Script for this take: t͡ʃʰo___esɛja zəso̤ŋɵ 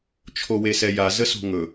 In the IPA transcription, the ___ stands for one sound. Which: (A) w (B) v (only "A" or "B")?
A